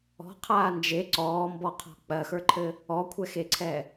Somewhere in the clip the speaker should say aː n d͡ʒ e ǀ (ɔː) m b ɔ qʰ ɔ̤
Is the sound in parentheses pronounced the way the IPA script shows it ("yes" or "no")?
yes